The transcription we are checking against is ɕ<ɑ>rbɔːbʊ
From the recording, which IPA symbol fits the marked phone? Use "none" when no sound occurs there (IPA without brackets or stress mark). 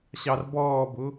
ɑ